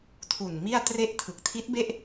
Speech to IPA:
tʰu˨˩nmi˥˩a̯tre˥˩ʔtʰɯ˨˩k̚ tʰi˦˥t̚be˥˩ʔ

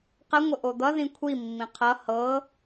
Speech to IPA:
qəŋʷə ʔod̪ʌðĩ kʷʰimːĩ qʰʌ hɤ

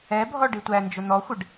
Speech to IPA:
ɛbʱɔ ɖitʷænd͡ʒʊ n̪ɔxʷɪɖ

